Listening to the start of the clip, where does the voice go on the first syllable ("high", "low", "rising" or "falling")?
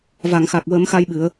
low